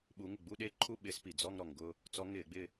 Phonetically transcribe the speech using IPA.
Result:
ɓ u˧˥ ŋ ɪ˥˩ ɡ͡b u˥˧ ɗ e˥˧ ǃʰ u˥˧ ɓ ɪː˧˥ s p i˩ d͡z ɔ˥˧ ŋ ɾ ɔ˩ ŋ ɡ ʊ˥˧ | t͡s ɔ˧˥ ŋ ɪː˧˩˧ ɡ͡b ɪ˥˧

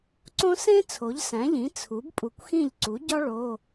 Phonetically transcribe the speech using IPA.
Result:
ǀ õ˥ s ẽ˥ t͡sʰ o˩˥ ʎ s æ̃˩˥ ʎ ĩ˩˥ t͡sʰ u˩˥ b pʼ u˨˩ kʷ x ĩ˥˩ ʎ ǀ u˩˥ ɟ ɒ˥ ɭ o˧˥˧

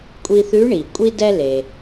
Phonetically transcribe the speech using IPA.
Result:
kʷʼ i˧ θ ʉ˧˥ ɳ i˩ kʷʼ i˥ d ɛ˥ l e˩

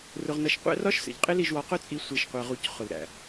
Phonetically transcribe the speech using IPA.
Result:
r ʊ˧ ʁ n ʌ˧ ʃ qʷ æ̰˦ r ɒ˦ ʃ s ə̰˨ ʎ qʼ ɪ˦ l i˧ ʒ w ɒ˧ q ʊ˦ t͡sʼ i˧ sʷ i˨ ʃ qʷ ɜ˨ ʁ u˨ c χ ʊ˨ l ɾ æ̰˨

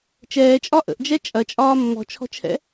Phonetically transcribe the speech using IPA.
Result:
t͡ʃ ɛː t͡ʃʼ ɒ ʔ ə̰ ʔ d͡ʒ ɛ t͡ʃʼ ɐ t͡ʃʼ ɒː mː ɔ̤ t͡ʃʰ ɔ̤ t͡ʃʰ ɛ̰

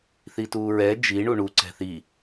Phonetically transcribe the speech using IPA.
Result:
θ i t uː ɹ ɛ d͡ʒ i ɳ u ɳ u ǀ ɛ̤ θ i

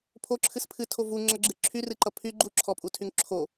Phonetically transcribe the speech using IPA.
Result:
pʰ o ǁʰ ɨ s pʰ ɨ tʰ o v u ŋ͡ǁ ʌ ɡ͡ǁ ɨ ǁʰ y r ɨ ǃ ʌ pʰ y ɡ͡ǃ u ǁʰ ɔ pʼ u tʰ y ŋ ǁʰ o

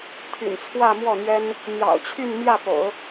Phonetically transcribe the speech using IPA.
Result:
t̪ʰ y̰˨˩ n t͡sʰ w ä˥˧ m w ɔ˥˩ n̪ ɥ ɛ˥ n | n̪ j ɑ̰˨˩ ʊ̯ t͡ɕʰ y˥˧ n m j ä˥˩ p o̰˨˩˦ ʊ̯

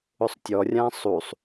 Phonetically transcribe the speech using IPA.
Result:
ʊ sˤ tʲ ɔ rʲ ã sˤ u sˤ

